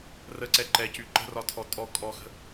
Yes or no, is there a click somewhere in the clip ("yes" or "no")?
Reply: yes